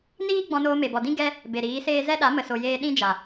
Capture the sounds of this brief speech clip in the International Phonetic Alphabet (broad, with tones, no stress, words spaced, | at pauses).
niː˦ ɡ͡bɔ̃˧noː˧me˨bɔ˨ dĩ˦ ɡɛ˦ | be˨ɾiː˨˦seː˦ zɛ˦ɗa˨˦ mə˨so˨jeː˧ ɗĩ˦d͡ʒa˨